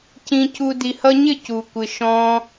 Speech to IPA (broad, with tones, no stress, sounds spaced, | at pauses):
c ĩ˧ c u˧ d i˨ h ʌ˧ ɲ ɪ˦˨ c u˨ kʷ ɪ˨ ʃ ɔ̃˧